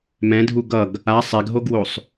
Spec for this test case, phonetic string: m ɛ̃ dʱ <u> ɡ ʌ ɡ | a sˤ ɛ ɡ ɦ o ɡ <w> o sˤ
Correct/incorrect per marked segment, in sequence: correct, correct

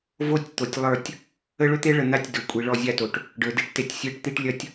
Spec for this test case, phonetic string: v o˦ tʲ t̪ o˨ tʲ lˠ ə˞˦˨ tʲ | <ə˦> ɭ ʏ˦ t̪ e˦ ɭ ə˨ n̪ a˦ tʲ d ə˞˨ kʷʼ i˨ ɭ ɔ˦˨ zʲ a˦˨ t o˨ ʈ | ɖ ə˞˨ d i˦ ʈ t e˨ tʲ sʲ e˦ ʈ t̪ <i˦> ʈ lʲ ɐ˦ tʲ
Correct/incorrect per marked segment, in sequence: correct, correct

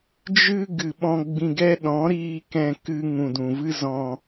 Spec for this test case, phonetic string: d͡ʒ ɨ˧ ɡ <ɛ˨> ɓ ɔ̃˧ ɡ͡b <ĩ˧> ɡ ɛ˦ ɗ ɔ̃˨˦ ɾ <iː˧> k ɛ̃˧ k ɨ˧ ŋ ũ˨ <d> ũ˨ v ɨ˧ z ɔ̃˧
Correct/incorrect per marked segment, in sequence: incorrect, correct, correct, correct

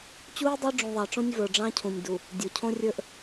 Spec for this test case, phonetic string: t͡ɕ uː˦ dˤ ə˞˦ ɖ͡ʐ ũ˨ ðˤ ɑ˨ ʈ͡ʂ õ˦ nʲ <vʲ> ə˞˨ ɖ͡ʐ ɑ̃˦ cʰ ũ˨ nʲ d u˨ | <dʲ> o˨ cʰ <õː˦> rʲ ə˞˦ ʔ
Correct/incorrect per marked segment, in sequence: incorrect, correct, incorrect

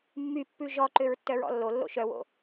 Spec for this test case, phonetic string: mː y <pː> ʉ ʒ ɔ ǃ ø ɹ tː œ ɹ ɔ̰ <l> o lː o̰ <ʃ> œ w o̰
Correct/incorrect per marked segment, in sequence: correct, incorrect, correct

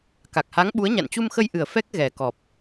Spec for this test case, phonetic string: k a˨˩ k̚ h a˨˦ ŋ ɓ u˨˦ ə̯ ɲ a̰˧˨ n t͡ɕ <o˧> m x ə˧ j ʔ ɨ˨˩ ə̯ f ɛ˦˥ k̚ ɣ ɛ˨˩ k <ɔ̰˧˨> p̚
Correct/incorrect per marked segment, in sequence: incorrect, incorrect

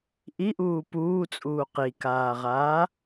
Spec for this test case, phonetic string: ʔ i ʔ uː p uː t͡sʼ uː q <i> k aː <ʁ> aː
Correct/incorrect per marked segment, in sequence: correct, correct

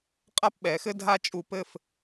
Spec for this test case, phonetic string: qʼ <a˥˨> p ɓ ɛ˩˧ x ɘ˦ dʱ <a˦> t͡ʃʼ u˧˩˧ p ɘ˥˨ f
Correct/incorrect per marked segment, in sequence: incorrect, correct

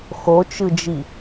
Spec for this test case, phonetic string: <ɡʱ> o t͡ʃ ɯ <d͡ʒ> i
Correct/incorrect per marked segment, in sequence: incorrect, correct

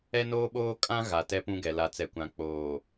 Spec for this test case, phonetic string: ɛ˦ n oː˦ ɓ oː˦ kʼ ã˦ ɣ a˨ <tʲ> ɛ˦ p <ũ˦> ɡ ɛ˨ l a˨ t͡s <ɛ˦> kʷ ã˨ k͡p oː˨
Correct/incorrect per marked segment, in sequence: incorrect, correct, incorrect

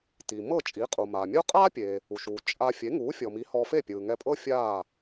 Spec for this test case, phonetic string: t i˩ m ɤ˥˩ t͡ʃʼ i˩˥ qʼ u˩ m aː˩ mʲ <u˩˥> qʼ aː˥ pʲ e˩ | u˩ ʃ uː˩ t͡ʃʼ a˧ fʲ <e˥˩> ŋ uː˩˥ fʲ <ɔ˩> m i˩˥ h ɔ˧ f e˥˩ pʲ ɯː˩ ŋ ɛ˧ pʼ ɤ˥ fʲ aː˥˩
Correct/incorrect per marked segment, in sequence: incorrect, incorrect, correct

